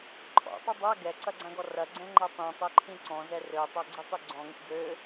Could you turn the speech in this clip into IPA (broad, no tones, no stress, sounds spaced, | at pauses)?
ǃʰ ɔ̰ tˤ ʏ dˤ a ɡ ɛ ǀ ɐ ɡ͡ǀ ã ɡ ɔ r ɐ ɡ͡ǀ ɛ̃ ŋ͡ǃ ɛ tˤ ĩ tˤ e ǃʰ ĩ ǀ ɔ̃ z ɛ r ø tˤ a ɡ͡ǀ e tˤ y ɡ͡ǀ ɔ̃ ŋ ḭ ɡ ø